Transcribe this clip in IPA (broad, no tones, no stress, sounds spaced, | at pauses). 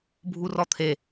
bʱ u r ɔ t̪ʰ e